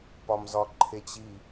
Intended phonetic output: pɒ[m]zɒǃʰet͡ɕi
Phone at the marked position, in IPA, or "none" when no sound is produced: m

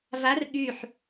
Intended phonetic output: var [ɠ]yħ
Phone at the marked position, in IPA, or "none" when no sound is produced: ɠ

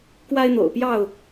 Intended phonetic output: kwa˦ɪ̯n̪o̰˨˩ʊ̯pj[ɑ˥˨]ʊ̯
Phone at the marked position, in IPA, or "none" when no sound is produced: ɑ˥˨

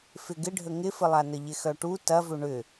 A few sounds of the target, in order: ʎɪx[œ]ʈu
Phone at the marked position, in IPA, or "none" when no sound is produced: œ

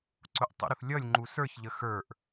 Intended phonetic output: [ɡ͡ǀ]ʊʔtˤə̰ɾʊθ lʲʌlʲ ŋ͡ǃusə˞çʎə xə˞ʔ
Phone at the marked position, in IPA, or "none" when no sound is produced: ǀ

